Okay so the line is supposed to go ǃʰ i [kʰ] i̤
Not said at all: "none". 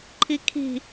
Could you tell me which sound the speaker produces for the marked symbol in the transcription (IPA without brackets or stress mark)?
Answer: kʰ